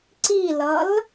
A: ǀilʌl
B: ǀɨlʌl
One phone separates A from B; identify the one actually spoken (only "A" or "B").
A